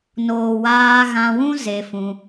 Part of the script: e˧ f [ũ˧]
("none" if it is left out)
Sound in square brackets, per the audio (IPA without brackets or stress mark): ũ˧